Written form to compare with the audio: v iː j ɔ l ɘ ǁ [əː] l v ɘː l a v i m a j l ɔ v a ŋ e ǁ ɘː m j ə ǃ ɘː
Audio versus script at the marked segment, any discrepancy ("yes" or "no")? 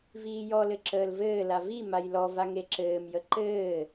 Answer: no